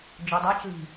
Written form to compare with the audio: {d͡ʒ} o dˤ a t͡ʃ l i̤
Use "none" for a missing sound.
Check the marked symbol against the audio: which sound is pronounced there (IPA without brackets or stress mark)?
d͡ʒ